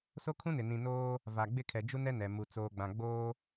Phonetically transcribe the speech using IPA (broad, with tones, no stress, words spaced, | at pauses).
so˦kʰũ˦nɪ˨ nĩ˨noː˦ | va˨ ɡ͡bɪ˦˨kʰɛ˨ d͡ʒu˦nɛ˦ nɛ˨mu˨ t͡soː˨ɡ͡bã˨ ɡ͡boː˦